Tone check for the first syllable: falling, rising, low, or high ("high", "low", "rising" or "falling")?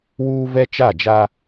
high